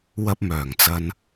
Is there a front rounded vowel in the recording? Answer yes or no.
yes